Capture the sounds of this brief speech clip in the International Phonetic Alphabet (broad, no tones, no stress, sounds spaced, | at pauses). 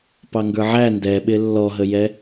p ɑ ŋ ɡ ə˞ ʕ æ n d ɛ ɓ ɪ lː ɔ ɦ ə j ɛ